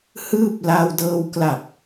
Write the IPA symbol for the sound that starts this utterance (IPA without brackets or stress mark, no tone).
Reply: h